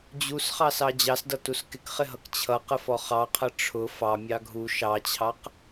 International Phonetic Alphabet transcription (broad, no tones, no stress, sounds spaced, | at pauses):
d͡ʑ u s χ ɑ s ɑ d͡ʑ ɑ s d ʌ t u s k ɪ k χ ɪ ɦ ʌ k t͡ɕʰ ʌ q ə f ɔ χ ɑ qʰ ʌ ʈ͡ʂʰ ʊ f ɑ mʲ ɑ ɡʱ u ʃ ɑ t͡ɕʰ ɑ q